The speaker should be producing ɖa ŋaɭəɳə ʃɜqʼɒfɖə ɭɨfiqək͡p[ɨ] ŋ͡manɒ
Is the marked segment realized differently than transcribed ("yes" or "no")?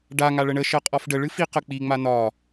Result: yes